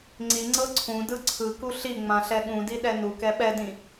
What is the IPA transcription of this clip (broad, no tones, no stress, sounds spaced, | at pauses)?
ŋ͡ǀ i ŋ͡ǀ ɤ ǀʰ ũ d ɯ ǀʰ ɯ k u ɬ i ŋ͡m ã ɬ ɛ ɠ ũ d i ɗ ɛ n u k ɛ ɓ ɛ d ĩ